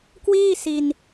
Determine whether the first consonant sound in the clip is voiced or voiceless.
voiceless